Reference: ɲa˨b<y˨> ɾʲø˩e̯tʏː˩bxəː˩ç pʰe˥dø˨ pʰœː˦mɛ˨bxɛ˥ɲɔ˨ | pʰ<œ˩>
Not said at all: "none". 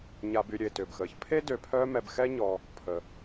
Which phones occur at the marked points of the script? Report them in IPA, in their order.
y˨, ə˩

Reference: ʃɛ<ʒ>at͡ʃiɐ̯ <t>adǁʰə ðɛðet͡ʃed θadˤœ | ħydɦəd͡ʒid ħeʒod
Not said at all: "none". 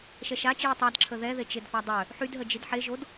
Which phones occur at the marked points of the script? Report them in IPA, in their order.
ʃ, tˤ

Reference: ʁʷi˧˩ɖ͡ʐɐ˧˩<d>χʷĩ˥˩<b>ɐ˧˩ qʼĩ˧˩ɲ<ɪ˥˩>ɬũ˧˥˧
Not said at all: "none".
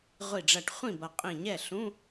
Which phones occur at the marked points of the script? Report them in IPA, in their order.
ʈ, b, ɛ˥˩

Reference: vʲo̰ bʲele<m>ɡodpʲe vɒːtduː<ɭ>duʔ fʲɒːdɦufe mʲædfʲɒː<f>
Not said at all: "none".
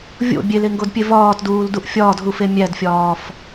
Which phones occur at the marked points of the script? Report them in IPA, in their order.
ŋ, l, f

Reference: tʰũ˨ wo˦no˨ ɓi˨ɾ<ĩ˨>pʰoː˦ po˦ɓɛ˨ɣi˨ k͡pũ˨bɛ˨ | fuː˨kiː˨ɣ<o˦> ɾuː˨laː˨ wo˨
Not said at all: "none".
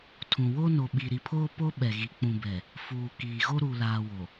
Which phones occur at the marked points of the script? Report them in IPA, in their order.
i˨, o˦

